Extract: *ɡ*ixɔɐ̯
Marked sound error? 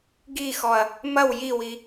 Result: no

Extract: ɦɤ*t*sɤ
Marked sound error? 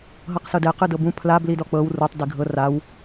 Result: yes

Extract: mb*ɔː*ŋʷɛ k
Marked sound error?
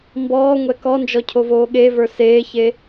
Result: no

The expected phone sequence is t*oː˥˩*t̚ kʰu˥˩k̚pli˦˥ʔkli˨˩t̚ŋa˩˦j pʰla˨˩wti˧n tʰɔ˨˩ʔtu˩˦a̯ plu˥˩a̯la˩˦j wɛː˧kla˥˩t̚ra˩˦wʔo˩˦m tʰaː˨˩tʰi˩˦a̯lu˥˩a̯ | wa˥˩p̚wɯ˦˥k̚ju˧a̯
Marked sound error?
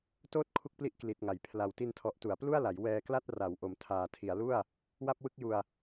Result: no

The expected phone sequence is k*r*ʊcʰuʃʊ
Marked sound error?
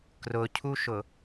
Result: no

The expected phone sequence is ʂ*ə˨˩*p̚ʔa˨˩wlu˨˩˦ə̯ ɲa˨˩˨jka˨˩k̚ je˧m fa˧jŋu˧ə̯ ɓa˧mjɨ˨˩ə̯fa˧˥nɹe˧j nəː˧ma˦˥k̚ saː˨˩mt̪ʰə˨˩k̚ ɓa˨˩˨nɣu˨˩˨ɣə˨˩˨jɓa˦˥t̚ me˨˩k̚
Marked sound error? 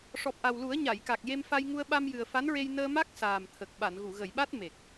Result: yes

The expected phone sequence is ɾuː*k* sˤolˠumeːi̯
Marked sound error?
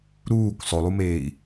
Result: no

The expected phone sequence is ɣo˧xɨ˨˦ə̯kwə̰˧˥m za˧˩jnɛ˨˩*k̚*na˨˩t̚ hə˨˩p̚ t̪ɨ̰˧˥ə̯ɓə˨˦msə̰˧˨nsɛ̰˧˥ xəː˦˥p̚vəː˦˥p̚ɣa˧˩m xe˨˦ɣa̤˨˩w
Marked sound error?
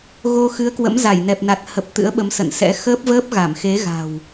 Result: yes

